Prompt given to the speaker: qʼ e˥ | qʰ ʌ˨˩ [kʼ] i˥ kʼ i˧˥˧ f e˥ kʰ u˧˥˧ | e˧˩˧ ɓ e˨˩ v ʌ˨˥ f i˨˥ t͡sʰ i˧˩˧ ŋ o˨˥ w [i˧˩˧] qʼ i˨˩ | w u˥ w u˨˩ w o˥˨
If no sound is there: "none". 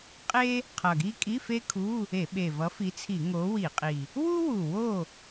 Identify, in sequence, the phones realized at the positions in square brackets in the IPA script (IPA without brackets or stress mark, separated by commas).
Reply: ɡ, i˧˩˧